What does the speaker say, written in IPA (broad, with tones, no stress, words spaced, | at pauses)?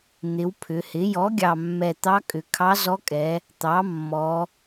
n̪ɪ˩˧w pʰʏ˩˧hɪ˩˥ jɔ˩˥ɡʲɑ˨˩mːɛ˨˩ t̪ɑ˧˥kʼʏ˨˩kʰɑ˧˥ zɔ˧˥kʼɛ˩˧ | t̪ɑ˩˥mːɔ˩˧